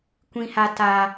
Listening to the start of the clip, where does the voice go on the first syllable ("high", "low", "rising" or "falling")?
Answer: high